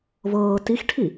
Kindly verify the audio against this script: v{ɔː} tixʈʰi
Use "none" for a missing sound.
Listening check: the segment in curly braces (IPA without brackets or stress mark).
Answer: ɤː